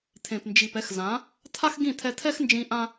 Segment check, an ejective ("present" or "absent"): absent